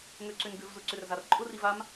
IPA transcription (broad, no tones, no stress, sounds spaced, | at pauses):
ŋ ø ǀ ʏ n ɡ ʏ v z ʊ ǀ ʏ r z a r ǃʼ ʊ r i v a m